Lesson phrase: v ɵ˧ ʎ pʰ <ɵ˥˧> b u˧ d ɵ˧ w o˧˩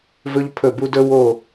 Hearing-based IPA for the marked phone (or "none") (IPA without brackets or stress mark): ɵ˧˩